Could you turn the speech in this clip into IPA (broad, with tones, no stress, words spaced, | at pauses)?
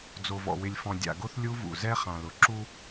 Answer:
d͡zo˨vɔ̰˨wɪ˨lʲfɔ̃˨ dʲa̰˨ɡo˦θ lʲu˦vṵ˨ zɛ˦χã˨lʊ˨ ǁu˦